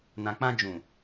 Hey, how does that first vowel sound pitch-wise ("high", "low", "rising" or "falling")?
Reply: low